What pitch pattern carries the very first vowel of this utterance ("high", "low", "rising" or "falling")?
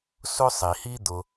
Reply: high